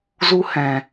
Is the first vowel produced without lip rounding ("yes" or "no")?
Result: no